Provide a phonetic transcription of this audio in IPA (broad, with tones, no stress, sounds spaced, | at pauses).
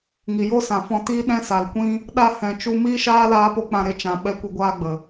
ŋ i˨ j o˦ s ã˨ f ɔ̃˧ t iː˦ ɗ ɛ̃˦ s a˨ l kʷ ĩ˦ | ɗ a˧ h ɛ̃˨ t͡ʃ u˧ m iː˦ ʃ aː˦ l aː˦ p o˦ k͡p ã˧ ɾ e˧ t͡ʃ ã˨ ɓ ɛ˧ kʷ e˧ ɡʷ aː˧ ɡ͡b ə˨